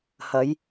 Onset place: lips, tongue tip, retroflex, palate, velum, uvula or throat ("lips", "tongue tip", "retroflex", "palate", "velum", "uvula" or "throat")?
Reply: throat